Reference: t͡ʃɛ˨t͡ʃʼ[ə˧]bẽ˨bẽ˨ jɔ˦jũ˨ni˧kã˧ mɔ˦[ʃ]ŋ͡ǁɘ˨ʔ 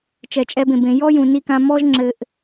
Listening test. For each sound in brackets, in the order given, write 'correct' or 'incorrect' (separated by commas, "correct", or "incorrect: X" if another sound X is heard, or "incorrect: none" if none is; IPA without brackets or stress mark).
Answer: incorrect: ɛ˧, incorrect: ʒ